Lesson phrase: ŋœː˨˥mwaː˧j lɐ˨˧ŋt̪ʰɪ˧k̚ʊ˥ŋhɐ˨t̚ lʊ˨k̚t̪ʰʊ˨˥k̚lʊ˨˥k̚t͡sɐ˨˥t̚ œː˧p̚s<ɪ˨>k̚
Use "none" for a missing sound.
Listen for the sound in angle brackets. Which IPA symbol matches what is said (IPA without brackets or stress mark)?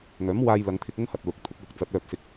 ɪ˧